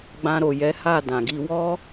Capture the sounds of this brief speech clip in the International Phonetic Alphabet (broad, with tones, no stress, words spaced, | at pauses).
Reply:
ɡ͡bã˧ɾo˨jɛ˨˦ha˦˨ dã˨ɡi˧wɔ˦